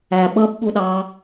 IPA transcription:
æ ɓ ʌ b ɓ u ɗ ɑ

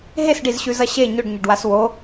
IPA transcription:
ɦ e s ɖ i z ɕ ʉ z ɐ ɕ e ɲ ɵ ɖ ɲ ɐ ɖ w a s w o

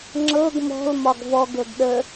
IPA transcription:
ŋ͡ǁ ɤ ɡ m ɔ̤ l m ɒ ɡ v ɔ ɡ ɤ ɡ ɗ ə

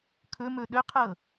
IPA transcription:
kʰ ɵ m ɵ ɗ ɵ qʰ ɤ

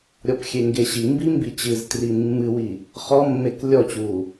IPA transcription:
ɾʲ ɔ p xʲ e ŋ ɡ e ɕ i m b i m b i t͡ɕ ɨ z t r i mː ɨ w i | χ ɔ mː e k lʲ ɔ t͡ɕ uː

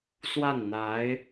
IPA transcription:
s w a˥˩ n n̪ a˧˥ ɪ̯

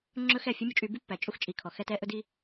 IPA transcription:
ŋ͡ǁ ɵ˦ x ɛ˦˨ fʲ ɵ˦ mʲ u˧ t͡ʃʼ y˧ b y˦ pː æ˨ t͡ʃʼ u˧ x t͡ʃʼ i˨ kʰ ɔ˨ x ɛ˧ t ɛ˧ ʔ ɵ˧ d i˧

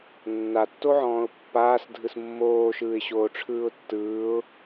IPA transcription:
nː a tː o ʕ ɔ̃ː ʊ̯ pː aː s dʱ ɯ s mː oː ʃ ɯː ɪ̯ ɕ oː ʈ͡ʂʰ ɯː ʊ̯ tː ɯː ʊ̯

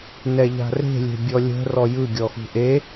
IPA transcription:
n ɛ ʎ a̤ r e̤ lʲ e̤ bʲ ɔ lʲ ə̤ r ɔ j ɯ ɡʲ ɔ x ṳ ʔ e

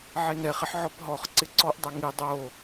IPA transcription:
ʕ e n ɛ χ ɪ ħ ʕ ɔ p ɦ ɔ χ ǀ ɪ ǀ ɔ ʔ dˤ a ŋ i dˤ o

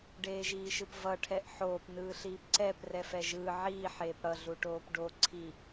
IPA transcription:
ɖ eː ʒ iː ʃ ɯ p v ʌ ʈʰ ɛ ʔ ħ oː p n ɯː ɬ iː p ǀ ɛ p r ɛ f ɛ ʒ ɯː ʕ iː ħ eː p ɽ ʌ ɮ u ʈ oː p ɖ o ǀʰ i

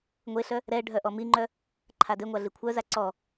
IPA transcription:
ŋʷ e ɬ œ | ɾ ɛ ɖʱ œ ʔ ɔ m i ŋ͡ǃ œ | ǃʰ a d e ŋʷ a ɮ i kʷʰ œ z a ǀ ɔ

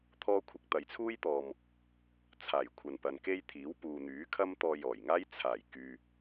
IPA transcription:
t̪ʰ ɔː˥ kʷʰ ɪ˧ k̚ t̪ ɐ˨ j t͡sʰ uː˥ j t̪ ɔː˨ m | t͡sʰ aː˨˩ j kʷʰ ɐ˨ n p ɐ˨ n k e˥ j t̪ʰ iː˨˥ w p uː˨ n̪ yː˨˥ kʰ ɐ˥ m t̪ ɔː˧ j ɔː˨˩ j ŋ aː˥ j t͡sʰ aː˨˩ j k yː˨

